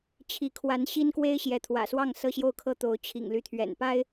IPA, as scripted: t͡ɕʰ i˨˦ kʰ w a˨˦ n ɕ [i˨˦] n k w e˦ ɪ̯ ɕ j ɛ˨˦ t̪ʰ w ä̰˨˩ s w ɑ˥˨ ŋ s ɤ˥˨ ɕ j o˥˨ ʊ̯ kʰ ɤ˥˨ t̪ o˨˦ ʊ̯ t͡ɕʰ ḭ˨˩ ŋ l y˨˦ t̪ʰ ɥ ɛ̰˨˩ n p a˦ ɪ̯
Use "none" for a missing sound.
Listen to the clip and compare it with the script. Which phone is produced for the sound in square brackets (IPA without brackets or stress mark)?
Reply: i˦